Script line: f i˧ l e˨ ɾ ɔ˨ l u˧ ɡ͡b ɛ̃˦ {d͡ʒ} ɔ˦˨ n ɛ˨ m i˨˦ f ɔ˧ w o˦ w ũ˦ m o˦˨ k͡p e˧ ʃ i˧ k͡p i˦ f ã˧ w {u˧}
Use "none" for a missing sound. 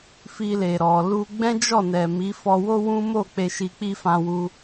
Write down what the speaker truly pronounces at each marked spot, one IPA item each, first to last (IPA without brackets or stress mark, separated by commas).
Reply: d͡ʒ, u˧